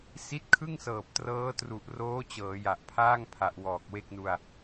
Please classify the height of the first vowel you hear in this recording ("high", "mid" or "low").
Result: high